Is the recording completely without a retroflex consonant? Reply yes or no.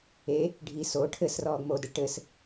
no